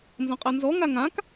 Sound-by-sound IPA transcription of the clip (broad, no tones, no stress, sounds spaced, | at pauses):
n z ɔ̃ qʼ a n z ɔ ŋ a ŋ ã k